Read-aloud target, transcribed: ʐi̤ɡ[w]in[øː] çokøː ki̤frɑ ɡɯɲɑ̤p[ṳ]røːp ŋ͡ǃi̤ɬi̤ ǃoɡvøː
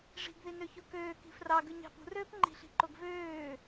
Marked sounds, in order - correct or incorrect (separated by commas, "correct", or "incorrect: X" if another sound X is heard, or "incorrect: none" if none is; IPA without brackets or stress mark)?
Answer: incorrect: ð, incorrect: ø, correct